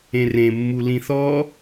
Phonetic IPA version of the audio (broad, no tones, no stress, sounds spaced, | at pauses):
ẽ r ẽ mː u l ĩ θ ɔ